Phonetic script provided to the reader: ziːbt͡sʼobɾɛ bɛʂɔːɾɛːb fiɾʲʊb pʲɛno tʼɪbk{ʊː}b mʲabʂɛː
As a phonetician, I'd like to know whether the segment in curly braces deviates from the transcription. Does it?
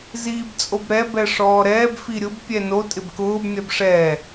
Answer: no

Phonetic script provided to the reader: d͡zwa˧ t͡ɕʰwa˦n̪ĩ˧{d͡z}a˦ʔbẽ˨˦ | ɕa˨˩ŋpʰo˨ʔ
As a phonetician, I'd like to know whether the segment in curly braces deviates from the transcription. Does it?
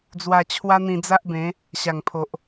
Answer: no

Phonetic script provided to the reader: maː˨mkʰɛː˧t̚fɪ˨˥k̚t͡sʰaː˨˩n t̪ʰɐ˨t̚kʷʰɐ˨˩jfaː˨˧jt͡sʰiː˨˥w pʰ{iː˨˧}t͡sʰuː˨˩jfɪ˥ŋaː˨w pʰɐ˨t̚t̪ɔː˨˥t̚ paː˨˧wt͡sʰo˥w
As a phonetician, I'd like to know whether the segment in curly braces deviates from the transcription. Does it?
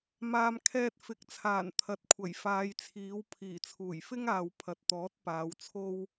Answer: yes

